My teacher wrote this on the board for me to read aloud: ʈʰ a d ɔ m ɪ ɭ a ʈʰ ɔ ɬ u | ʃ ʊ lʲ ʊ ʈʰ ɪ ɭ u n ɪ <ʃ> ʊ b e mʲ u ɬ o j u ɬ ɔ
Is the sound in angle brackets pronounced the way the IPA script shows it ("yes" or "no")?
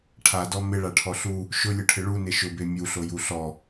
yes